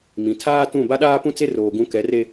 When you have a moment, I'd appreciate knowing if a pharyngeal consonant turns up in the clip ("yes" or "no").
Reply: no